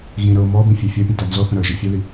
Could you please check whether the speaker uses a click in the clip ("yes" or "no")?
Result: no